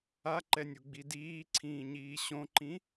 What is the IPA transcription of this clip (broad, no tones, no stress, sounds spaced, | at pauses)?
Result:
a ǃ ɛ nʲ u ɡ͡b i d iː ǀʰ ĩː ɲ iː ɕ õ ǃ ĩ